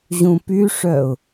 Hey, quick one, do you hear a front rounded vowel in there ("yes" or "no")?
yes